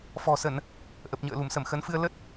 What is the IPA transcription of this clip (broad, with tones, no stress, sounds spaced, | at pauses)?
f ɔ̤˨˩ s ə˧˩˨ n | ʔ ə˨˩ p̚ ɲ ə̰ː˧˨ l u˧˩ m s ə˧˩ m x ə˨˦ n f ɨ˧ ə̯ l ə˦˥ t̚